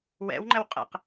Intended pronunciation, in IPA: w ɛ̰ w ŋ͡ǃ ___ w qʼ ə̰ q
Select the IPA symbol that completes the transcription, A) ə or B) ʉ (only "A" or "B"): A